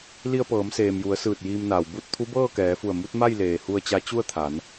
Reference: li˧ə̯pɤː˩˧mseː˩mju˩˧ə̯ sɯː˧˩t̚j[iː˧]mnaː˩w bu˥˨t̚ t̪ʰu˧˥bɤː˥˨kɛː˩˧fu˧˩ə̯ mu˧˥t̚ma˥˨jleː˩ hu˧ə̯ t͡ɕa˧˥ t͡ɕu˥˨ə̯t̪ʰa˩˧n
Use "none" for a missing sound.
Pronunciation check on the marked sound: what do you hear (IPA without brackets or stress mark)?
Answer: iː˧